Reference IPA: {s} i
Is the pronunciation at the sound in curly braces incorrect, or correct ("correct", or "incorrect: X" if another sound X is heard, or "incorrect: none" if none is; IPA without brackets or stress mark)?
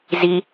incorrect: z